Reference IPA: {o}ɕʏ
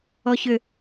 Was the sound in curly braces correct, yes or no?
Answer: no